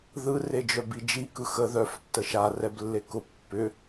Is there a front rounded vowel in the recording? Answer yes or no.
yes